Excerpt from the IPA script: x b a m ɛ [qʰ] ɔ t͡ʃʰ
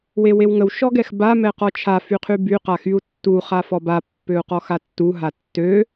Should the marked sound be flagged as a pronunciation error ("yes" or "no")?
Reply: yes